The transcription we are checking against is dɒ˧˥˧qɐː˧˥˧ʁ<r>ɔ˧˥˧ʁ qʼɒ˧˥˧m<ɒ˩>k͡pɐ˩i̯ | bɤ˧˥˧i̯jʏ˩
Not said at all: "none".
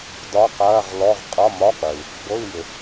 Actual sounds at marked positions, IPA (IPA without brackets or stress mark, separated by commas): l, ɒ˧˥˧